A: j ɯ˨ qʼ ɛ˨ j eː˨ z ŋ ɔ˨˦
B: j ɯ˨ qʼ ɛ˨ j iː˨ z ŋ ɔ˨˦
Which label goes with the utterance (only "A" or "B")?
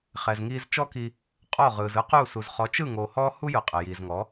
B